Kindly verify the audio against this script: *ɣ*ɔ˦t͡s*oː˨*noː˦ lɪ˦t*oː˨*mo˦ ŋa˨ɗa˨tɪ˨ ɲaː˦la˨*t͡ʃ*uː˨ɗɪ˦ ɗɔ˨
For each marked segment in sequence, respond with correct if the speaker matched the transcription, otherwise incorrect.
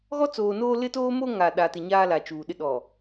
correct, correct, incorrect: oː˦, correct

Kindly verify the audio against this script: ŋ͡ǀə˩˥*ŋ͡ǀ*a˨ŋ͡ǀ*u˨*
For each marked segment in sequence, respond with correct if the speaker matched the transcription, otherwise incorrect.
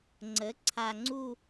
incorrect: ǀʰ, incorrect: u˦˨

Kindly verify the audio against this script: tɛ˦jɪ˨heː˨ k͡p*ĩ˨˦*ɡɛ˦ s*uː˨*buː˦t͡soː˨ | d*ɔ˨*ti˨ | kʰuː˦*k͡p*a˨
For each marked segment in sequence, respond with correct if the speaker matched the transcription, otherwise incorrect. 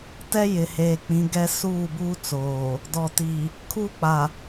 correct, incorrect: uː˦˨, correct, correct

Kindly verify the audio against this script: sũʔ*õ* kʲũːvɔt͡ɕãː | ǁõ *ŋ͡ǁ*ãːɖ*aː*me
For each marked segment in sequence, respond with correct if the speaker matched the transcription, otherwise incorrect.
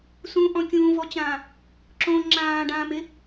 incorrect: ɔ̃, correct, incorrect: ãː

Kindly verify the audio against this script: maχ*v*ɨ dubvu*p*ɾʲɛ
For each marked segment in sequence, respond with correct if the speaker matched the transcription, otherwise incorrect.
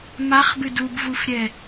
incorrect: b, incorrect: f

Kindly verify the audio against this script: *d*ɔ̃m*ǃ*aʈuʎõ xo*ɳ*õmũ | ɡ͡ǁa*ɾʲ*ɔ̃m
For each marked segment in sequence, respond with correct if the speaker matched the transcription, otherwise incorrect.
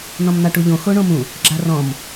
incorrect: n, incorrect: n̪, correct, incorrect: r

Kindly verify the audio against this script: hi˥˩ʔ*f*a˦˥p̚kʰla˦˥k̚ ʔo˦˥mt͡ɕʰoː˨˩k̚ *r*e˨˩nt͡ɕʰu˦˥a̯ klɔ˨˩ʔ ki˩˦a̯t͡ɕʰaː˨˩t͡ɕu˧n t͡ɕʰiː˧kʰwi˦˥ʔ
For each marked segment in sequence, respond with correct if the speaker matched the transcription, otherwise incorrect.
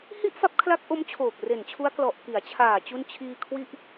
correct, correct

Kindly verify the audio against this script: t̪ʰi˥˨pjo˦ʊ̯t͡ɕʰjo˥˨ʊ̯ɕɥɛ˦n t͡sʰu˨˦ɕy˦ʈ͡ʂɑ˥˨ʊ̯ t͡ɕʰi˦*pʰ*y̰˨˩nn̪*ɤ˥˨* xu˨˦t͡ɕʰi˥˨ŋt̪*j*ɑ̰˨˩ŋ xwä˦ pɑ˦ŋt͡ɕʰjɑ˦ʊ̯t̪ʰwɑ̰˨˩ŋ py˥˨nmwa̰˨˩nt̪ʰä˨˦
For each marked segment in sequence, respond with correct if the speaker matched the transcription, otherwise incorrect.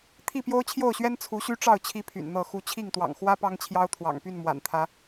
correct, correct, incorrect: w

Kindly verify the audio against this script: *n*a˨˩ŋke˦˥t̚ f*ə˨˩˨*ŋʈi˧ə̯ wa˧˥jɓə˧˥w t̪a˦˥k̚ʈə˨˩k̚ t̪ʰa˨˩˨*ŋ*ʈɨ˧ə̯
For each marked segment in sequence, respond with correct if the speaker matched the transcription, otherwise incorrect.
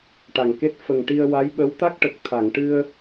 incorrect: ʈ, incorrect: ə˨˩, correct

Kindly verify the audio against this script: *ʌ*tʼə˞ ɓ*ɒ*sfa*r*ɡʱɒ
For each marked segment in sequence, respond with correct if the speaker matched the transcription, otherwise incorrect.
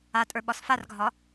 incorrect: a, correct, correct

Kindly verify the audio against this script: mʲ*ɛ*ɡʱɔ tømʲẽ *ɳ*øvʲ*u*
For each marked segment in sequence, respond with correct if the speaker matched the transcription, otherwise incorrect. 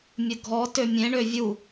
incorrect: ə, correct, correct

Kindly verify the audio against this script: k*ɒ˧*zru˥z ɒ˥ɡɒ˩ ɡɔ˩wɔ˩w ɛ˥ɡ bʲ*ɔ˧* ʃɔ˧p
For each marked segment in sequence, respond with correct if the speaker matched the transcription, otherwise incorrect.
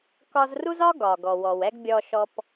correct, correct

